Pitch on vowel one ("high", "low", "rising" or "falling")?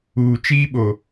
low